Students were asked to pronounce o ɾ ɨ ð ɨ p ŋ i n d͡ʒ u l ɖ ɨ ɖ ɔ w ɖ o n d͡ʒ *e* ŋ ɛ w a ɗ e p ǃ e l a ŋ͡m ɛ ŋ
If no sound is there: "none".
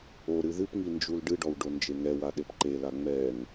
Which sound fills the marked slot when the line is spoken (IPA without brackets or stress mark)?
e